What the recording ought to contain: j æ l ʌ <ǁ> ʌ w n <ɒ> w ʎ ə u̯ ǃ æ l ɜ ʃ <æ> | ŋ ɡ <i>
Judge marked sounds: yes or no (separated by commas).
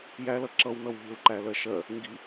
yes, no, no, yes